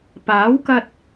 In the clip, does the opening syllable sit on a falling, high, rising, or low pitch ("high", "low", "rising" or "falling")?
rising